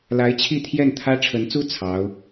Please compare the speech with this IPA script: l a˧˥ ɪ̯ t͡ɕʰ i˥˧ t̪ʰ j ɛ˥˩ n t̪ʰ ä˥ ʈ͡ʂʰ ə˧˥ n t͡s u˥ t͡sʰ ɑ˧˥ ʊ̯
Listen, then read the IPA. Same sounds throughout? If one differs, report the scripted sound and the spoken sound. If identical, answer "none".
none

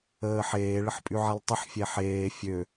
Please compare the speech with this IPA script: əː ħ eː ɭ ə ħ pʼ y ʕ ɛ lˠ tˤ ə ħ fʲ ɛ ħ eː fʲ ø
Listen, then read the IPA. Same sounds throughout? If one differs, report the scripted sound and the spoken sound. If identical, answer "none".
none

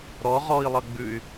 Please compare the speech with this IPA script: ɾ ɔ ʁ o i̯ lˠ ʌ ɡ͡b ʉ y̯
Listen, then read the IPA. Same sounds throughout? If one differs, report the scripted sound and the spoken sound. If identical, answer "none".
o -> ɔ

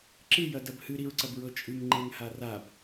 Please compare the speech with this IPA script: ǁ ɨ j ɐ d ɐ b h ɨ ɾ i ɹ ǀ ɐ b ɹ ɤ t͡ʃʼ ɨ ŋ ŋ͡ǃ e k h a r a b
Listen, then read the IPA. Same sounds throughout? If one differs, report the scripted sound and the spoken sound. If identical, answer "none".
k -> ŋ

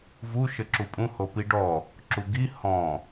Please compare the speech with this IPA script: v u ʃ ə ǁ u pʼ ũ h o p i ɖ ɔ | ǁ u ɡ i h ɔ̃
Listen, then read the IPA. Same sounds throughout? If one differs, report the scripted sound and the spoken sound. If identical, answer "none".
none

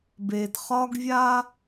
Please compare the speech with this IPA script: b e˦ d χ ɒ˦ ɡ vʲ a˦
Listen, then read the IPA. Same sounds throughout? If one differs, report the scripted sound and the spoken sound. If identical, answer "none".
e˦ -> e˨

